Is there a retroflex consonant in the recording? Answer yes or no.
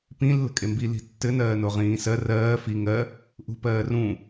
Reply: no